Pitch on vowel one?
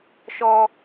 low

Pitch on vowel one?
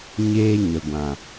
high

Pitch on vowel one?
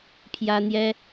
high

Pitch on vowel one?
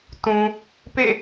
low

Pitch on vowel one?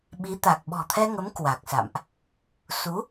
rising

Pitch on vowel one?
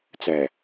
low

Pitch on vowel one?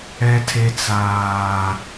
low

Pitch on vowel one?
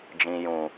low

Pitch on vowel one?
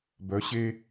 rising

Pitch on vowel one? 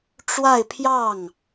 falling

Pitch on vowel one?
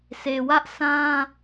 low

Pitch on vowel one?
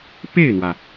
falling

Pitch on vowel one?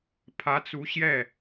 rising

